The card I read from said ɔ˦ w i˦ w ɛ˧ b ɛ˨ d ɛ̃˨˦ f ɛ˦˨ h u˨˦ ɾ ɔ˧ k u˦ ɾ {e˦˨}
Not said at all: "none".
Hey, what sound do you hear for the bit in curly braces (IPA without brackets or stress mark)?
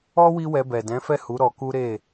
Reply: e˦˨